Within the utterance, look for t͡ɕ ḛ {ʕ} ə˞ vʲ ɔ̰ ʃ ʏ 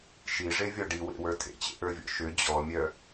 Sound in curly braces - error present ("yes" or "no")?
yes